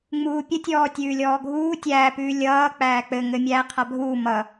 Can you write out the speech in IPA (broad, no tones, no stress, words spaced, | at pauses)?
ŋ͡muːpʲətʲɔː tʲʉːlʲɔːɡʱuː tʲæːpʉː lʲʌː k͡pæːk͡pɘ ŋɘmʲæː qʰabʱuː mʌ